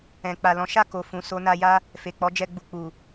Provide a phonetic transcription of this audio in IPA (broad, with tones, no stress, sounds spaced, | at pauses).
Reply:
ɛ̃˨ k͡p a˨ l ɔ̃˨˦ ʃ a˦˨ k o˨ f ũ˨ s o˧ n a˧ j a˦ | f e˨ k͡p ɔ˨˦ d͡ʒ ɛ˧ ɡ͡b u˨ k͡p u˨